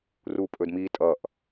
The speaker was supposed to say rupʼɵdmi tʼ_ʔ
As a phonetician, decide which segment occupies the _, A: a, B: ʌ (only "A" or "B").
B